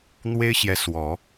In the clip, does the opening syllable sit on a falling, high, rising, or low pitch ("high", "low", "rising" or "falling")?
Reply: high